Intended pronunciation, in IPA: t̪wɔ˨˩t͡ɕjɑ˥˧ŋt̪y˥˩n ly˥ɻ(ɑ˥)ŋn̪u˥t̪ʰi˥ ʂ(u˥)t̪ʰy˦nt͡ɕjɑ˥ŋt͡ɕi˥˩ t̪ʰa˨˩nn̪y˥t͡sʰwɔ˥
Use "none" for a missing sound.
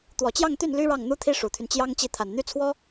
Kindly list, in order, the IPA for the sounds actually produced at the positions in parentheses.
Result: ɑ˥˩, u˨˩

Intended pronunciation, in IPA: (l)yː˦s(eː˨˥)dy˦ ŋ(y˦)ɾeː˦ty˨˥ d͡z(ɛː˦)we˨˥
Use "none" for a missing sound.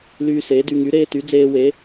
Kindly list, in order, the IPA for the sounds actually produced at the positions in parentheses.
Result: l, eː˨˥, y˨˥, eː˦

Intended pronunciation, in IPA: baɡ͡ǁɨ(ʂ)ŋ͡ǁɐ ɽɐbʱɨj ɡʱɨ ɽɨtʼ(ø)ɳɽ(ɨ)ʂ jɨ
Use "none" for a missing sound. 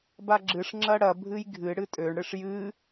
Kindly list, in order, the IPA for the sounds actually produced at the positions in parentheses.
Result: ʂ, ø, ɨ

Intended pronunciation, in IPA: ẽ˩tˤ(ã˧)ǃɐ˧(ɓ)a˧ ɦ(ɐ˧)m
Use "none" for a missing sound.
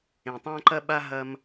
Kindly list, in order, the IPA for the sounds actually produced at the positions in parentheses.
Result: ã˧, ɓ, ɐ˧

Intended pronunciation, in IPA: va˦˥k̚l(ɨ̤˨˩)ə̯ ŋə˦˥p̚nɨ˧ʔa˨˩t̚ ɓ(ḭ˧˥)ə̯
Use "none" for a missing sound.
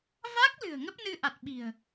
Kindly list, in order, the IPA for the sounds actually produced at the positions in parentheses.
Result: ɨ̤˨˩, i̤˨˩

